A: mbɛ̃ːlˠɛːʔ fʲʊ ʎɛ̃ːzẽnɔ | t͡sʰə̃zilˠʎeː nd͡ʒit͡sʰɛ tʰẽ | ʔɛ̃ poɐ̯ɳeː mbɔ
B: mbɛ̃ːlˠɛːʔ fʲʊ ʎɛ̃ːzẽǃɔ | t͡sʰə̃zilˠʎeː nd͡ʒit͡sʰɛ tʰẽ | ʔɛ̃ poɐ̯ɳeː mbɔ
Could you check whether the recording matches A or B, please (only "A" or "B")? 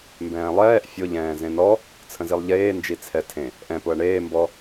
A